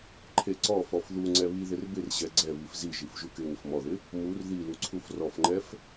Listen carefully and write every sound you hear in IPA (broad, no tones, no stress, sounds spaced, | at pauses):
ǃʰ e ǀ ɔ f ɔ f ð u ŋ͡ǀ ɛ β i ð ɪ r b ɪ r ʑ ɛ ɡ͡ǀ ɛ β i f z i ʒ i f ʒ u k ɪ ŋ ɪ f m ɔ ð ɪ | m u r ð i l u ǀʰ u f r ɔ f ŋ͡ǃ ɛ f